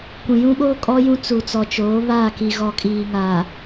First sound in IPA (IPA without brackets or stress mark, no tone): kʷ